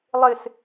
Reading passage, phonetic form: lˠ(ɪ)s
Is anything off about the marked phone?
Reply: no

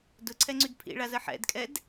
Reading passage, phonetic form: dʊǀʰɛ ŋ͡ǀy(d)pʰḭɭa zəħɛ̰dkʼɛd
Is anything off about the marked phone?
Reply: no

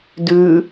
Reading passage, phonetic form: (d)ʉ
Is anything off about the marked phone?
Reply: no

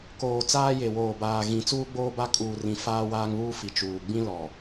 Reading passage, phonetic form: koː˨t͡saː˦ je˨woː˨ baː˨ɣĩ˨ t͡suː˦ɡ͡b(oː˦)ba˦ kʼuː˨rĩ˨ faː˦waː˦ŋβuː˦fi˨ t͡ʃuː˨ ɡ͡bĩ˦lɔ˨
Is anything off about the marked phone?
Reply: no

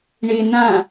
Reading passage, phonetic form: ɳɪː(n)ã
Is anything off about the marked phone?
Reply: no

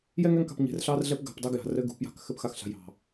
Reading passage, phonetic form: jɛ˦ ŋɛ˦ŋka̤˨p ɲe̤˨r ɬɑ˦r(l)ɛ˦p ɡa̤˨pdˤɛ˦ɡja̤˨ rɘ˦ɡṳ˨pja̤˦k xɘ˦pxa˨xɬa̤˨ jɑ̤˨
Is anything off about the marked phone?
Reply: yes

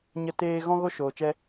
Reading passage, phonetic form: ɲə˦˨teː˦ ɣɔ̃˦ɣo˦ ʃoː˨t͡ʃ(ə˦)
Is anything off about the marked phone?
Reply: yes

